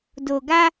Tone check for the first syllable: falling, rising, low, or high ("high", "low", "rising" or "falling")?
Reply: low